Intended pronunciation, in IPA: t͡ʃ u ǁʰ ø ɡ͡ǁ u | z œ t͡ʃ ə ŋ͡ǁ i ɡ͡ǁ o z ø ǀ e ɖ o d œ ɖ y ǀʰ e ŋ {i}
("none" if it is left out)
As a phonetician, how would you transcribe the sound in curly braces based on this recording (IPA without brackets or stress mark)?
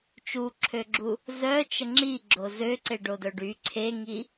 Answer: i